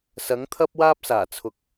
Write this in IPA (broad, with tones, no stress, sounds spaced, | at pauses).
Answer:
s ɐ˨˥ ŋ t̪ʰ ɐ˥ p̚ w aː˥ p̚ s aː˨˩ t͡sʰ ʊ˨ k̚